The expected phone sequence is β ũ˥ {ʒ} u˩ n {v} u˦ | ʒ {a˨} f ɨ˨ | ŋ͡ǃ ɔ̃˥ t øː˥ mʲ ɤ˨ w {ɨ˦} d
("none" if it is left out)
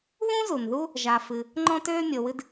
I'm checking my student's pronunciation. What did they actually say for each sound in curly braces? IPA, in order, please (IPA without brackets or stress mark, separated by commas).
z, ð, a˨, ɨ˦